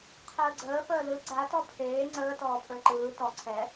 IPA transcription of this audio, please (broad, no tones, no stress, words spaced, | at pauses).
qʰəːɡ͡ǀəː fəːlɯ ɡ͡ǀatɔ pʰeː ŋ͡ǀəːtɔːpʰə˞ ǃɯː tɔ ǀʰɛ